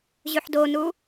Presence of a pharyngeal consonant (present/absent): present